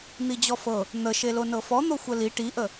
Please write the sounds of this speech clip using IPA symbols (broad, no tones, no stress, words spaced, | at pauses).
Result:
n̪id͡ʑɔfɤ | n̪ə ʃelonɤfɔ n̪oxʷəli ʈiʔə